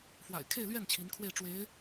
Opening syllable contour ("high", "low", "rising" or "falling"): low